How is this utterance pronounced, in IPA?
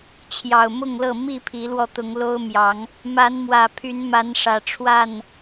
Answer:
t͡ɕʰ j ɑ˨˩ ʊ̯ m ʊ˥˨ ŋ l ɤ˥˨ m i˥˨ pʰ i˨˦ l w ɔ˧ t̪ ʊ˨˦ ŋ l o˦ ʊ̯ m j ɑ˨˦ ŋ | m a˨˦ n m w ä˨˩ pʰ y˨˦ n m a˨˦ n ʂ ä˨˩ ʈ͡ʂʰ w a˥˨ n

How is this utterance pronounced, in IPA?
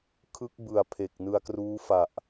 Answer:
kʰ ɯ˦˥ k̚ b ɯ˨˩ a̯ pʰ e˨˩ k̚ n ɯ˧ a̯ k r uː˦˥ f a˨˩ ʔ

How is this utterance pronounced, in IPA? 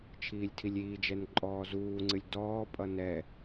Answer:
t͡ʃʰ iː lʲ tʰ i lʲ iː d͡ʒ ɛ n ǃʼ ɔː z uː ŋ͡ǀ ɨ lʲ d ɔː pʼ ʌ n ɛ

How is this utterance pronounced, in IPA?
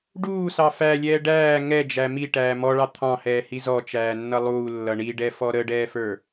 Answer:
ɖ uː s ɑ f æ lʲ ɛː ɖ æː ŋ ɛ d͡ʒ æ m i ʈ æː m ɔ ɭ ɑ t̪ʰ ɑ̃ h ɛː h i z ɔ t͡ʃ æː nː ʌ lˠ uː lː ʌ ɳ i ɖ ɛ f ɔ ɾ ə ɖ ɛː f ə˞

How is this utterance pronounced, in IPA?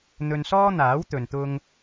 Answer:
n̪ ɵ˧ n s ɔː˥ n̪ aː˨˥ w t̪ ɵ˧ n t̪ ʊ˥ ŋ

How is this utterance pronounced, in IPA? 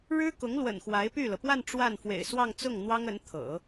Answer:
ɻ ɻ̩˥ k ʊ˧˥ ŋ l w ə̰˨˩ n x w a˧˥ ɪ̯ p y˥˩ l ɤ˩ p w a˥˧ n ʈ͡ʂ w a˥˩ n f w ḛ˨˩ ɪ̯ s w ɑ˥˧ ŋ t͡s ʊ˥˩ ŋ n̪ w ɑ˥ ŋ ə˧˥ n t̪ʰ ɤ̰˨˩˦

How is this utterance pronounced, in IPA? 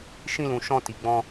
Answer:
ʃ ĩ˧ l ũ˨ ʃ ɔ̃˧ t i˨ ɡ͡b ɔ̃˧

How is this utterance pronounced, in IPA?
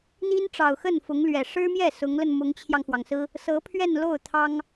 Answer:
n̪ i˥ n ʈ͡ʂ ɑ˨˩ ʊ̯ x ə˥˩ n f ʊ˧˥ ŋ l ɥ ɛ˨˩ ʂ ɻ̩˥ m j ɛ˥˩ s ʊ˧˥ ŋ l ə˧ n m ʊ˧˥ ŋ t͡ɕʰ j ɑ˧ ŋ x w ɑ˩ ŋ s ɹ̩˥ | s ɤ˧˥ pʰ ɥ ɛ˥˧ n l o˥˩ ʊ̯ t̪ʰ ɑ˥ ŋ

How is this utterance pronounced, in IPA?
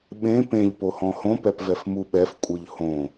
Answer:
ɓ ẽ p ẽ ʎ p o h ɔ̃ h õ p ɛ p v ɛ f m u ɓ ɛ f kʷʼ ɯ ʎ h õ

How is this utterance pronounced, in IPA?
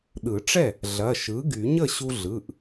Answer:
ɗ ɯ˨˩˦ ʈ͡ʂ ɛ˥˩ | ɮ ɐ˩˧˩ ʃ ɯ˩˥ ɡ y˨˩˦ ɲ ə˥˩ ɕ u˧ ɮ ɯ˩˧˩ ʔ

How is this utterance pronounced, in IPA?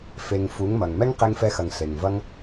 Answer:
f e˨ ŋ f u˨˦ ŋ m ɐ˨ ŋ m ɛ˦ ŋ q e˧ ŋ f ɛ˧ x ɐ˨ ŋ ɬ e˨ ŋ v ɐ˦ ŋ

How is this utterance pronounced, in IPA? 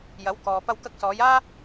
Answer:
j ɐ˨˥ w k ɔː˨ p ɐ˧ w k ɐ˧ k̚ s ɔː˨˧ j aː˥

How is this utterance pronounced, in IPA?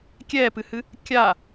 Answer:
kʲ ɛ p ɨ h ɨ | kʲ a

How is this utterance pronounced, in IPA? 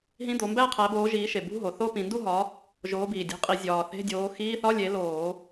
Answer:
ɦ ĩ˧˥˧ d̪ o˨˦ m b æ˥˧ qʰ æ˨˦ b oː˨˦ ʒ iː˨˦ ʃ e˨˩ b ṳ˧˥˧ ɦ o˨˩ θ o˥˧ p ĩ˧˩˧ n d u˥˧ ɦ ɒ˨˦ | ʒ oː˨˦ b iː˨˩ dʲ e̤˨˦ qʼ i˧˩˧ zʲ ɒː˨˩ θ e̤˧˥˧ dʲ oː˨˦ x iː˧˥˧ θ ɒ˧˥˧ lʲ e˨˦ l oː˧˩˧

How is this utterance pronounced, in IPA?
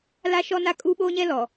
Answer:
l a˦ ʃ ɔ˦ n a˦ kʼ u˦ ɓ oː˦ ɲ ɛ˦ l ɔ˨

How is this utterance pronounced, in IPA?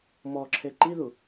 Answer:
m ɔ ǁʰ e ǃ i ð u

